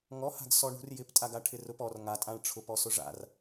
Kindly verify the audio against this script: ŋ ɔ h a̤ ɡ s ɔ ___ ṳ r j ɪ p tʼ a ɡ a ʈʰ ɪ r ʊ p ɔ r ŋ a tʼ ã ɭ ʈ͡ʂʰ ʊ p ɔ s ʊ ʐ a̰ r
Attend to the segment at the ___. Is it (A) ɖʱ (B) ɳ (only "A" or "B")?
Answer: B